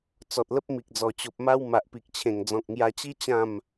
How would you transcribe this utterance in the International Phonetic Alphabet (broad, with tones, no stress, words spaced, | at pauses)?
t͡sɔ˨t̚lə˦p̚ mi˨k̚d͡zɔ˨˩t͡ɕo˨p̚ma˦w ma˨ʔpi˨k̚t͡ɕʰẽ˨˩ŋ d͡zɔ̃˨k̚ŋja˧t͡ɕi˦ t͡ɕã˥˧m